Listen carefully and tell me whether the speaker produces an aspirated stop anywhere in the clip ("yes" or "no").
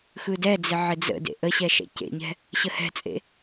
no